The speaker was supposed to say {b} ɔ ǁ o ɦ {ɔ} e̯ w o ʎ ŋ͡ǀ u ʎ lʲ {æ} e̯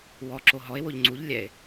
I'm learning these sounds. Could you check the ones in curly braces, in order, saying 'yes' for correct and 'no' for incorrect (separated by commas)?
no, yes, no